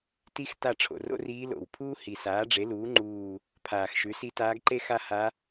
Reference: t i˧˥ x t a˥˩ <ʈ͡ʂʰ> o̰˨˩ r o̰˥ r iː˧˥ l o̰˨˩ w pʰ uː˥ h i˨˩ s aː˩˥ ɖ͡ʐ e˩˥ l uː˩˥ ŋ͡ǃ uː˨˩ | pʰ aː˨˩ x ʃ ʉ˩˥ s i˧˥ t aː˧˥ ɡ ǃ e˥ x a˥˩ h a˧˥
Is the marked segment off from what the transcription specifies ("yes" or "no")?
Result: no